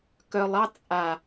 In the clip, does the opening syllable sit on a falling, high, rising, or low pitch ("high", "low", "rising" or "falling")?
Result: low